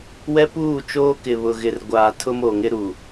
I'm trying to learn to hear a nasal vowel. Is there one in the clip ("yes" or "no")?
no